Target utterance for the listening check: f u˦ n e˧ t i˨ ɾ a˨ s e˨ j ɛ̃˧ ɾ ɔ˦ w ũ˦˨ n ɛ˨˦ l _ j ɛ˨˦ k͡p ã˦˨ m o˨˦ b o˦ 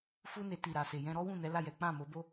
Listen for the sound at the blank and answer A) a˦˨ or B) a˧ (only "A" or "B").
A